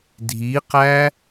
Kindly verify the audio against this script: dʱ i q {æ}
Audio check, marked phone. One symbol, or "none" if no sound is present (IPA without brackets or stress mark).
æ